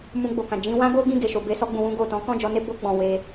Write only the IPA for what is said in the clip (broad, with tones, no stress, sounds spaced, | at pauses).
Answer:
m ũ˧ ɡ͡b o˨ k ã˨ d͡ʒ ĩ˧ w ã˦ ɡ o˦ ɡ ĩ˦˨ ɡ e˨ ʃ o˨ b e˧ s ɔ˧ ɡ͡b ũ˨ w ũ˧ ɡ o˨ t ɔ̃˨˦ k ɔ̃˦˨ d͡ʒ ɔ˧ n e˦ b o˧ ɡ͡b ɔ̃˨ w e˧